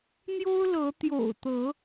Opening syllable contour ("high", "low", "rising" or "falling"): high